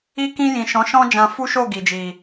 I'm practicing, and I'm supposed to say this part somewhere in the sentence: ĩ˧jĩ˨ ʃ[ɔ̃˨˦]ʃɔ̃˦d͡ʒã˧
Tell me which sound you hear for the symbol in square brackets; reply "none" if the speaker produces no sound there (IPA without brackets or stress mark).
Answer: ɔ̃˨˦